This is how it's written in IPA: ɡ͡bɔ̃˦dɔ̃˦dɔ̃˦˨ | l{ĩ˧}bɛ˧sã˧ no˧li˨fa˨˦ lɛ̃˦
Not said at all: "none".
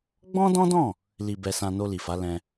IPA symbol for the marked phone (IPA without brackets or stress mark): i˧